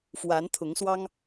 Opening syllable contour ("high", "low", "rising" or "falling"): rising